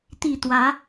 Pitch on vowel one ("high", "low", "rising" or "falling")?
falling